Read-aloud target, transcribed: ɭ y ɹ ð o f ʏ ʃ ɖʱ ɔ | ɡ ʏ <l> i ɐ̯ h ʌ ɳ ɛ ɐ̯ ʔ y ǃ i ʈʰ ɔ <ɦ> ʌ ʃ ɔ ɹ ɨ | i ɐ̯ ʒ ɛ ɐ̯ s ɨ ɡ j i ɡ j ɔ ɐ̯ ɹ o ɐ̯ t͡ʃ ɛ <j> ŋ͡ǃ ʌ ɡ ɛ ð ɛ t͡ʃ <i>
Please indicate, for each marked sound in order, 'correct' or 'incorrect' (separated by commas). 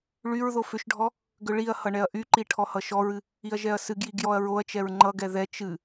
incorrect, incorrect, incorrect, incorrect